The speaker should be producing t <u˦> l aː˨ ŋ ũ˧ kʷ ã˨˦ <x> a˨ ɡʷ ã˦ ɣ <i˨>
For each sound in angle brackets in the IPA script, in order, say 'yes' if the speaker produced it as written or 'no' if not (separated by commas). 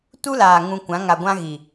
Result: yes, no, yes